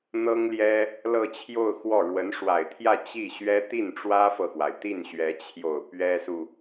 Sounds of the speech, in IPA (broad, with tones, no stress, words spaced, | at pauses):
n̪ɤ˥ŋljɛ˥ | lɤ˥˧t͡ɕʰjo˥˧ʊ̯ xwɔ˥˩ ɻwə˧˥nʂwa˨˩ɪ̯t̪ʰjä˥˧ t͡ɕi˥˩ ɕɥɛ˥ t̪i˥˩nʈ͡ʂwä˥fɤ˨xwa˩ɪ̯ t̪i˥˩nɕɥɛ˧˥t͡ɕʰjo˨˩ʊ̯ pɥɛ˥su˨